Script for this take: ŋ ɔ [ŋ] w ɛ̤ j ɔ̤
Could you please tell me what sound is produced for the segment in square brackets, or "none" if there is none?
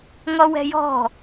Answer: none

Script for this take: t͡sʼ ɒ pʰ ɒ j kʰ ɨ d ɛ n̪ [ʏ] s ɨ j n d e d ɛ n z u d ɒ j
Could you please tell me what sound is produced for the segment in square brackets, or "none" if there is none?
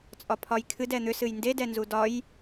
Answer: ʏ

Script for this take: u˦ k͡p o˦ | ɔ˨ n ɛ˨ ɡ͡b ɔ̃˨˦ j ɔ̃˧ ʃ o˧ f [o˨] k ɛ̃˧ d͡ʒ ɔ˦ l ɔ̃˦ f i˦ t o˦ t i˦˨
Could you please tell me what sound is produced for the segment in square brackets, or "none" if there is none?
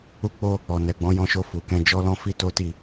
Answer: u˨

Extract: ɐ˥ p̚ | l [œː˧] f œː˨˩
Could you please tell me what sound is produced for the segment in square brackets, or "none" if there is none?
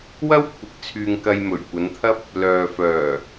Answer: œː˨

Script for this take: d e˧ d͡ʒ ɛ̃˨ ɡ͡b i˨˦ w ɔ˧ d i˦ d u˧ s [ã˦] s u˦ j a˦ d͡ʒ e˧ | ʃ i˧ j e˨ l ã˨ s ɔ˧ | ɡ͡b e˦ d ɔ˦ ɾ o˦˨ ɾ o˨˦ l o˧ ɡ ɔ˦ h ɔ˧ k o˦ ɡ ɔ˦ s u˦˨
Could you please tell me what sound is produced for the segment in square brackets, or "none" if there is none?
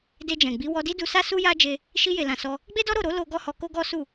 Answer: a˦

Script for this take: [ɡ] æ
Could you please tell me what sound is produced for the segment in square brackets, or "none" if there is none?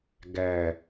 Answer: ɡ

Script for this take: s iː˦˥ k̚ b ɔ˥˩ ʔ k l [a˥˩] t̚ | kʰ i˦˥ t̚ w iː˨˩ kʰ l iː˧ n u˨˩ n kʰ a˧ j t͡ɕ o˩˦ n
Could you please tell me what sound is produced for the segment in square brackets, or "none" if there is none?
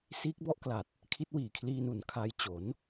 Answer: a˨˩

